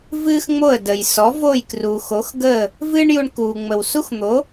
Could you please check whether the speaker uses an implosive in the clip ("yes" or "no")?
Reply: no